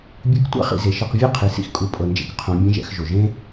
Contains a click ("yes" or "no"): no